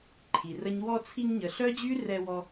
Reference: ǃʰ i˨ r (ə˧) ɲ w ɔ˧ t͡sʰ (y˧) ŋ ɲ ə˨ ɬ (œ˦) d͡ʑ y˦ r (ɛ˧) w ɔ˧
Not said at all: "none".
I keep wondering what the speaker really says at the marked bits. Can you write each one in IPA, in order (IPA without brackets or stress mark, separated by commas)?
ə˦, i˧, œ˦, ɛ˧